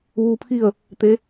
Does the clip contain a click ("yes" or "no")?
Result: no